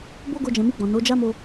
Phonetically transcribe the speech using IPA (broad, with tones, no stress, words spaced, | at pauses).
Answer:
bo˦ɡo˧d͡ʒɛ̃˨mi˧ ɡ͡bɔ̃˨no˨˦d͡ʒa˦mo˧